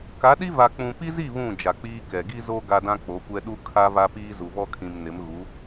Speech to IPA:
k a˨˦ ɗ i˦ v a˨ k͡p ũ˨ p i˦ z i˦˨ β ũ˦˨ d͡ʒ a˨ k͡p iː˦ k ɛ˨ ɡ i˦ z o˦ ɡ a˦ d ã˦ k͡p o˨˦ kʷ ɛ˦ ɗ u˦ kʰ a˦ v a˦ p iː˦ z u˨ v ɔ˦ kʰ ĩ˨ m n ɪ˨˦ m ɣ u˨˦

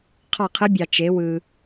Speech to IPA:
qʰ ɑ˦˨ qʰ ɯ˧˥ bʲ ɑ˨ t͡ʃ e˩˥ w ɯ˨

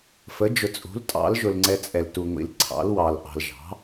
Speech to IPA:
f ə˩˥ d͡ʒ ʊ˨ t͡sʼ ṳ˩˥ l tʼ ɑ̰˩˥ l ʒ ʊ˨ l ŋ͡ǀ ɛ˨ t͡sʼ ɛ˨ l t u˨ ŋʷ ḭ˨ l ǀʰ ɑ̰˩˥ l w ɑ˨ l ʔ ɑ̤˨ l ʒ ɑ̤˩˥

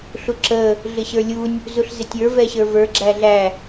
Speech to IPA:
ɬ u ǁ ə | ɮ ɪ ɕ ə˞ lʲ u nʲ | z u ɬ z ɪ tʲ ə˞ v ɛ ɕ ə˞ v ə˞ ɡ͡ǁ æ ɮ æ

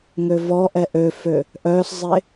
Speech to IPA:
ŋ ø v ɔ ʔ ɛ ʔ ø f ø | ʔ œː s zˤ e

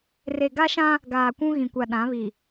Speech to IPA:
r e˨ ɡ a˦ ʃ ã˦ | ɡ aː˨ kʷ ũ˦ ɣ ĩ˨ kʷ a˨ ɗ ã˨˦ β i˨

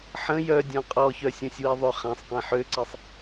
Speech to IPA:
ħ ə̃ j œ dʲ ɔ̃ qʼ ɔ ç œ sʲ ɔ̃ sʲ w i ðˤ ʏ χ ã sˤ q ẽ ħ ø ǀ i sˤ

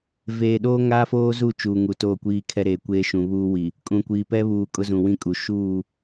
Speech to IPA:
v eː˨ ɗ oː˦ ŋ aː˦ f oː˦ z u˦˨ t͡ʃ uː˨ ŋ u˨ t oː˦˨ kʷ iː˦ kʰ ɛ˦ ɾ eː˨ kʷ eː˦ ʃ ũ˨ β uː˦ w i˨ | kʼ ũ˨ kʷ iː˨ p ɛ˦ β uː˨ kʼ ʊ˦ z ũ˨ w ĩ˦ kʼ u˨ ʃ uː˦˨

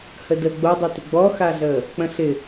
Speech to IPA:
h ə d ə ɡ͡b o dˤ o t ɪ ɡ͡b ɔ x a ɮ əː | k͡p ə̃ ɬ ɪ

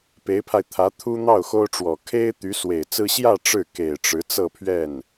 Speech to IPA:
p e˧˥ ɪ̯ pʰ a˧ ɪ̯ t̪ʰ ä˧˥ t̪ʰ u˥ n̪ ɑ˥˩ ʊ̯ x o˥ ʊ̯ ʈ͡ʂ w ɔ˨˩ kʰ e˥ ɪ̯ t̪ y˧˥ s w e˨˩ ɪ̯ t͡s ɹ̩˥ ɕ j ä˥˧ ʈ͡ʂ ɻ̩˥˩ k e˨˩ ɪ̯ ʈ͡ʂ ɻ̩˧˥ t͡s ɤ˥˧ pʰ ɥ ɛ˥˩ n

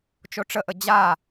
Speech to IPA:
t͡ʃ o ʈ͡ʂ ə ʔ ə d͡ʑ a

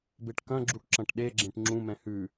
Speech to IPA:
b e ʈ k ɐ̃ ɡ͡ǁ u ʈ ǁ ɐ̃ ʈ ɗ e ɡ͡ǁ ẽ ʈ ŋ͡ǁ ũ m ɛ̃ h ʉ

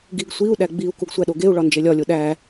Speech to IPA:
ɡ i ɡ sʷ i u̯ ɗ æ ɡ͡b i u̯ k u ɡ sʷ æ ɗ o ɡ e u̯ ɭ ɒ n d͡ʒ e lʲ ɒ lʲ o ɗ æ

